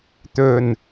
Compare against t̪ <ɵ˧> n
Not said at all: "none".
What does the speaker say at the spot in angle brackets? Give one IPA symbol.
ɵ˨˩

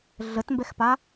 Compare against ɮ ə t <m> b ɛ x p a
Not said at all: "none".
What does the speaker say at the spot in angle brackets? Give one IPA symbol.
m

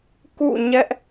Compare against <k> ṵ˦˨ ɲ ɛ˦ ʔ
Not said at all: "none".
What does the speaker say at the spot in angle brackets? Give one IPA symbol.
k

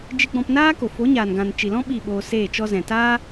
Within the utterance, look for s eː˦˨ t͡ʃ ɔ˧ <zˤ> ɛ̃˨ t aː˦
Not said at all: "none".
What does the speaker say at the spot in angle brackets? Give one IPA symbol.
z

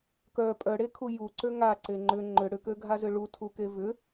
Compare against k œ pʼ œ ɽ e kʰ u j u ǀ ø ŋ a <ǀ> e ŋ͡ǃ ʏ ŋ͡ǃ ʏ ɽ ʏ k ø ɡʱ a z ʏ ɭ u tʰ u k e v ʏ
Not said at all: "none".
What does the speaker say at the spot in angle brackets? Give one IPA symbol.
ǀ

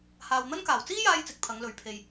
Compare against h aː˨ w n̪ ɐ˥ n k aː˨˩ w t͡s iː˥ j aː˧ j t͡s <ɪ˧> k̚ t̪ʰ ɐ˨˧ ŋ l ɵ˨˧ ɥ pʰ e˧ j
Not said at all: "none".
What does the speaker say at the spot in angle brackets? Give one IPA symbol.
ɪ˨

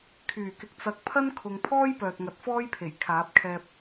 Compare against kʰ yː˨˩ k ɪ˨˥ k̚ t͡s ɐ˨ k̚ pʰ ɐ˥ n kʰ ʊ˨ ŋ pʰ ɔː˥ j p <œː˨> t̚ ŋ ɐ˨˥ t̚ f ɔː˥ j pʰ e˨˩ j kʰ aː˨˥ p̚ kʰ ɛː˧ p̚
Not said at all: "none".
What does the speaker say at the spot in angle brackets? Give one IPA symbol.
œː˨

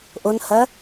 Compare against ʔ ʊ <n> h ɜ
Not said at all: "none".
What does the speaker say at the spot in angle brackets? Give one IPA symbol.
n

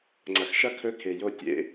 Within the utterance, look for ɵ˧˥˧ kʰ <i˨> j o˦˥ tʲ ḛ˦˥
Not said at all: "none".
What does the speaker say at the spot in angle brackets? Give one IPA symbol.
e˨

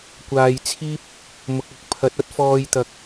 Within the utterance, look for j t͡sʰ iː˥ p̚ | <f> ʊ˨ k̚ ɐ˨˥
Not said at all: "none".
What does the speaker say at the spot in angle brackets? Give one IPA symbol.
m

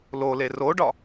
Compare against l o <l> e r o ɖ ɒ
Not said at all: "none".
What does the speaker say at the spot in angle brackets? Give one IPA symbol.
l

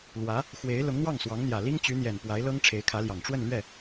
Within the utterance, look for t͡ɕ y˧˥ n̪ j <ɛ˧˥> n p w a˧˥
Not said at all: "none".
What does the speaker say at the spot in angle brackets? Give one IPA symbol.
ɛ˨˩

